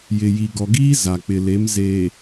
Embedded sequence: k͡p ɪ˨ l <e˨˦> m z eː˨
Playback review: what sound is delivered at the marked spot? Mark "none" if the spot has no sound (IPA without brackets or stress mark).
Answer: e˨˦